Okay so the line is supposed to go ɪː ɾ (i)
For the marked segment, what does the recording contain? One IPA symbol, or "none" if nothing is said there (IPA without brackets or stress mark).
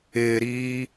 iː